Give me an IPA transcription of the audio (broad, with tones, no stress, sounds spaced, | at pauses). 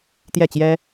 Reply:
t̪ j ɛ˥˩ t͡ɕ j ɛ˥